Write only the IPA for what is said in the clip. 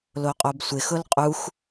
l o qʼ o b sʷ ɪ x ʊ l qʼ u x

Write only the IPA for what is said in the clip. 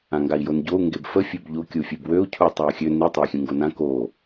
ã ŋ ɡ a i̯ j o n ɟ o u̯ ŋ ɡ e b f ə fʲ ø b ʎ o kʲ u fʲ e b w ø u̯ cʰ u tˤ a u̯ xʲ ø n i tˤ ø i̯ xʲ ũ ŋ ɡ o n ã k o

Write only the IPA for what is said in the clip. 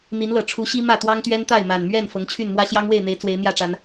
n̪ i˨˦ n l ɤ˨˩ ʈ͡ʂʰ u˨˦ ɕ i˦ m ä˥˨ t̪ w ɑ˦ ŋ t̪ ɥ ɛ˦ n t̪ a˥˨ ɪ̯ m a˨˩ n m ɥ ɛ˥˨ n f ɤ˨˦ ŋ t͡ɕʰ y˥˨ n m w ä˦ ɕ j ɑ˦ ŋ w e˥˨ ɪ̯ n̪ e˨˦ ɪ̯ t͡s w e˨˦ ɪ̯ n̪ j ä˥˨ ʈ͡ʂ a˨˦ n

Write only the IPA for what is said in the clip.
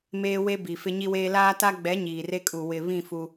m eː˦ w e˦ b i˨ f ɪ˦ ɲ i˦ w eː˦ l aː˦ t a˦ ɡ͡b ɛ˨˦ ɲ iː˨ r e˦ kʼ u˨ w ɪ˨ β ĩ˦˨ f u˦

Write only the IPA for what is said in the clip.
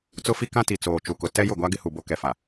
t͡s ʊ˦ f i˦ k ã˦ t i˨ t͡s oː˨ t͡ʃ u˨ k ʊ˨ t ɛ˦ j ʊ˦˨ ɡʷ a˦ ɡ ɪ˦ h u˨ b o˦ k ɛ˨ f a˨

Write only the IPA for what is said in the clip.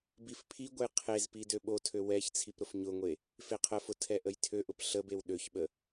b i f pʰ i ɡʷ ə j qʰ e z p i d ø ɓ o tʰ ø w ɛ ç t͡sʰ i p ɾ ʊ f ɲ ʊ ŋʷ e | f e qʰ ə f ʊ tʰ ɛ ʔ ə j tʰ ø ʔ ʊ p ɬ ə b e w ɗ ø ç ɓ ə

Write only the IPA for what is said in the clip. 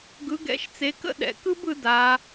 ɡ ɯ˩˧ ɡ ɛ̰˩˧ ʃ t͡s e˩˧ k ə̰˥ ɗ ɛ̰˩˧ k ɯ˥ b ɯ˩˧ d a˩˧

